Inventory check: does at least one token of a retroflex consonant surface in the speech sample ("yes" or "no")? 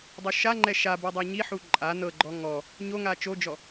no